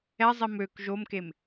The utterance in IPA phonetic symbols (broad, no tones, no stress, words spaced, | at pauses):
ɛzˤi møk ʒomkem